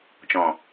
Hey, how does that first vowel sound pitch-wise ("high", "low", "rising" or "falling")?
low